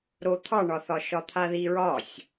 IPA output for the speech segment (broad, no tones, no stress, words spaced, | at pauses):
ɾot̪ʰɑɳɒθɒ ʃɒt̪ʰaðiɹɒsʲ